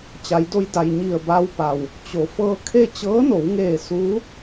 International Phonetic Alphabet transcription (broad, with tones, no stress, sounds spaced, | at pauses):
t͡ɕ a˩˧ j d o˧ j d a˩ j ɲ i˧˩ ə̯ b a˧ w p a˩ w | t͡ɕ o˩˧ f ɤː˧ kʰ e˥˨ t͡ɕ ɤː˧˥ n o˩˧ w ŋ eː˧˩ s uː˧˥